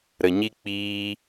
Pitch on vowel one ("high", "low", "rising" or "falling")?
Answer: low